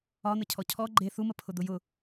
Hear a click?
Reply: yes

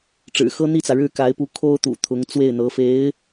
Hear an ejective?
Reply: no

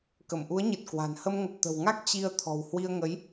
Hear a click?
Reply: no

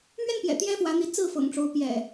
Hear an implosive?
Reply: no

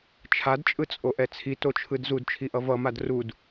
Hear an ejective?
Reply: yes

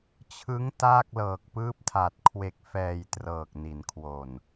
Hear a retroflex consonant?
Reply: no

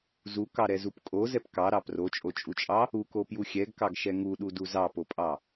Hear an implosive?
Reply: yes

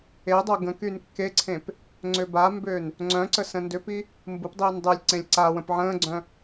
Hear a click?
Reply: yes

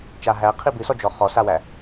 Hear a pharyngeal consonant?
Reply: no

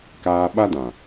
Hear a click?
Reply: no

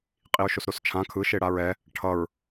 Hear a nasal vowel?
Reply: yes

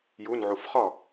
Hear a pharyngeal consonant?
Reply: yes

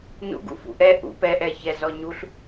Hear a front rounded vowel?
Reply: no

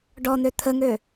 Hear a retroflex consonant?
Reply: yes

